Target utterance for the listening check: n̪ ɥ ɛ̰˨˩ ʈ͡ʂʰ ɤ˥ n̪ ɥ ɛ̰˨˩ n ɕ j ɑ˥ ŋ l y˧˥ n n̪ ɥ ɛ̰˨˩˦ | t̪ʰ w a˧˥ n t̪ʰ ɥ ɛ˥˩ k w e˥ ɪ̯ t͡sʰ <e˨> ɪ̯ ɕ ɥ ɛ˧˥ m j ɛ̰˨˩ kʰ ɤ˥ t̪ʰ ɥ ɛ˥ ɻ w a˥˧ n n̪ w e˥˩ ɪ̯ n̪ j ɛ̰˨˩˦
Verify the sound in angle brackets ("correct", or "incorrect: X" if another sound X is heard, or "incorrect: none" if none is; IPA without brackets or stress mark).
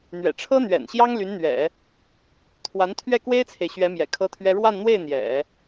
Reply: correct